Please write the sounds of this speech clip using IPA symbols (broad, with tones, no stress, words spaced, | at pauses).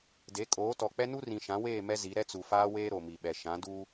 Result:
de˨˦kʼoː˨˦tɔ˨ k͡pɛ˦nu˦ rĩ˨ʃã˨˦weː˦˨ mɛ˦zi˨˦ ɾɛ˦t͡su˨faː˦weː˦ ɾo˨mi˨ɓɛ˨ ʃã˨˦duː˦